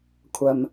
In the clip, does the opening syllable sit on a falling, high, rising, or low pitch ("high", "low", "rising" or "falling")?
low